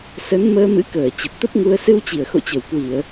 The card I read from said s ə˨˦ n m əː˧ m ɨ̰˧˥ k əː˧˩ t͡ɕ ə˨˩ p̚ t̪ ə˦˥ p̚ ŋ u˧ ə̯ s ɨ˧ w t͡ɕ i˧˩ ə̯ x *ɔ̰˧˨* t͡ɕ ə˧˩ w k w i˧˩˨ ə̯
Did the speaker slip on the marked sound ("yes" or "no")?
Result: yes